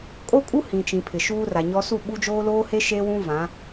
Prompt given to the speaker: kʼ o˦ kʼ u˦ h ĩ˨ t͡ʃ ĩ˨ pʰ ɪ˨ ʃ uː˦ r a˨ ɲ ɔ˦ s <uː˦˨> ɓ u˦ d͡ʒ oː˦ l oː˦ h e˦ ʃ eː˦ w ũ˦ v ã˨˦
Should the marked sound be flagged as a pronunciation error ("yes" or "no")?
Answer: yes